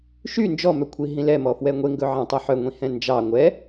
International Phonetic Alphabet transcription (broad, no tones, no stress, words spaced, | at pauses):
ʃy nd͡ʒɔmœkʷʰi ɦĩlɛmɔ fwɛŋʷeŋɡɵʕɑ̃ tˤoħœŋʷĩ hɛ̃nd͡ʒɑ ŋʷɛ